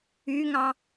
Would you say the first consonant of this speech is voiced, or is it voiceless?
voiced